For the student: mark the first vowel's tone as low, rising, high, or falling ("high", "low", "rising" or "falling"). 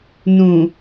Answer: low